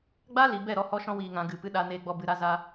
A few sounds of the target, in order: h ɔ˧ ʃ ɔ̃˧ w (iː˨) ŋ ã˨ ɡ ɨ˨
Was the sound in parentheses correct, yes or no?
yes